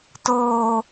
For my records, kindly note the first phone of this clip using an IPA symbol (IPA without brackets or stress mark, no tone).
t